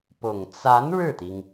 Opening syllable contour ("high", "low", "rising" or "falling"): low